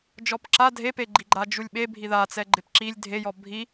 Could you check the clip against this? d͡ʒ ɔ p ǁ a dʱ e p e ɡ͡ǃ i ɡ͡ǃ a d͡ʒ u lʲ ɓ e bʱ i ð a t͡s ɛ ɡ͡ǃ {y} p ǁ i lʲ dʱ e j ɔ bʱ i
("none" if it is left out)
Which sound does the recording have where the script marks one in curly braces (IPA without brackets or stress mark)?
ɪ